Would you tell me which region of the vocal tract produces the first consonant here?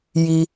palate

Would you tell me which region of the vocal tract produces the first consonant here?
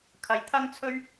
velum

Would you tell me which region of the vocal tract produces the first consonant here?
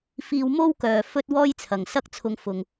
lips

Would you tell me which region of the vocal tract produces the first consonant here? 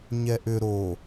palate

